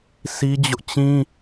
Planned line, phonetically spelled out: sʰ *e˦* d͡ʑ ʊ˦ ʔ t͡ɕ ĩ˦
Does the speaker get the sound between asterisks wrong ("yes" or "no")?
yes